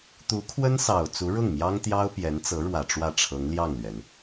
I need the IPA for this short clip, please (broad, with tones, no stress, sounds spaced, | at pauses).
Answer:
t̪ u˧˥ kʰ w ə˥ n s ɑ˨˩ ʊ̯ t͡s u˧˥ ɻ ʊ˥˩ ŋ m j ɑ˥ ŋ t̪ j ɑ˥ ʊ̯ p j ɛ˧˥ n t͡s ɤ˧˥ ɻ w ä˨˩ ʈ͡ʂ w ä˥˩ ʈ͡ʂʰ ɤ˧˥ ŋ l j ɑ˥˩ ŋ l ɥ ɛ˩ n